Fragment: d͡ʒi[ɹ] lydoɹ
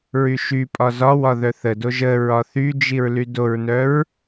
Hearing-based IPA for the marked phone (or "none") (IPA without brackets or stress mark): ɹ